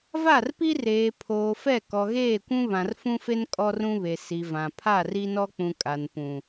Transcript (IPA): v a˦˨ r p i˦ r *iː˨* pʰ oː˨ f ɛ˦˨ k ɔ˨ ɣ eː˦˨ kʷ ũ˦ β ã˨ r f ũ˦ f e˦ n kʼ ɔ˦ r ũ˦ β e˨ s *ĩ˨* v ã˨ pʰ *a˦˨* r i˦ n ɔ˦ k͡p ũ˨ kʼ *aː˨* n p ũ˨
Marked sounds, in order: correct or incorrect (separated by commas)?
incorrect, incorrect, correct, incorrect